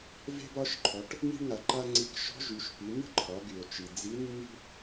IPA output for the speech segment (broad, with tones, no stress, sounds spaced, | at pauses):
v e̤˥ b ɒ˧˥ ʃ ǃʰ ɔ˩˧ ʈ | n̪ i̤˥ ɳ ŋ a˩ ǃ a˥ ŋ͡ǀ i˧˥ k ʃ ɔ̤˧˥ ʒ y˩˧ ʃ p i˩˧ n̪ ə̤˥ ǃʰ ɒ˩˧ ɡ y˩ o̯ t͡ʃ i˩ d͡z i˧˥ nː i̤˥